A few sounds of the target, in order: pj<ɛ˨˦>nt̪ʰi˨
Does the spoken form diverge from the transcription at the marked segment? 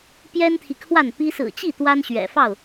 yes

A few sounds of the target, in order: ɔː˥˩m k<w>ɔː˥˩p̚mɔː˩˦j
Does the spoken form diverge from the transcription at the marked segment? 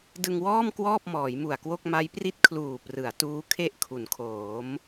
no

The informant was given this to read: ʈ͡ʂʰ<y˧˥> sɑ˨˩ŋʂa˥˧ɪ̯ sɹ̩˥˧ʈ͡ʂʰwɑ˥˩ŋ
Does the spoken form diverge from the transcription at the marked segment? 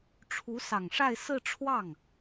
yes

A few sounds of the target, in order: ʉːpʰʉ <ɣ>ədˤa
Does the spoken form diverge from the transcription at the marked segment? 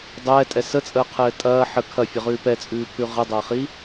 yes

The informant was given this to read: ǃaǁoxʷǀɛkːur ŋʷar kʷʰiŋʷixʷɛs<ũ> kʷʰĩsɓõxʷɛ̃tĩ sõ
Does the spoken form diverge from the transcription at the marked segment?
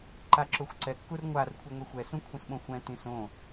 no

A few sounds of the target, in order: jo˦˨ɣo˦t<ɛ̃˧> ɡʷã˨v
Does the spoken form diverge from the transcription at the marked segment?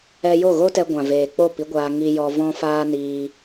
yes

